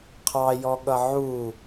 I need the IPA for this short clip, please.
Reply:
qʰ ɑ j ɔ ɠ ʌ ʕ u

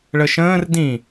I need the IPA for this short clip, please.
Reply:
ɭ ə ʃ ə̃ː r d ĩ

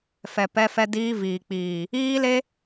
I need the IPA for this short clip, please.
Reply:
f ɛ˨ p ɛ˧ f ɛ˧ d iː˧ v iː˨ k͡p iː˨ | iː˦ l e˦

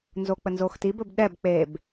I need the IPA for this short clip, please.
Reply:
n z o k͡p ə n z o x t i b ɵ b ɗ ɛ b k͡p e b

